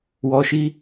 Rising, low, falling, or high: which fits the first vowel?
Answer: low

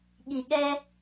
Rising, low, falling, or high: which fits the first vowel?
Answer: low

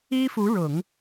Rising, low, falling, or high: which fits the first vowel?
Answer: high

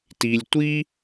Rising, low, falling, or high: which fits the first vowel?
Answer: low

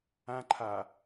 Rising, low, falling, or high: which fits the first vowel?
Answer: high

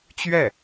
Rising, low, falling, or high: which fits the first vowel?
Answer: falling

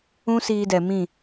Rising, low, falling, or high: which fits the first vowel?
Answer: high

